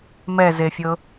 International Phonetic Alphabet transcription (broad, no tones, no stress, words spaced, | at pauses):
mɛzefʲɤ